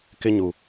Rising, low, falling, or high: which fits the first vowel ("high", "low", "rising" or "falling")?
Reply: high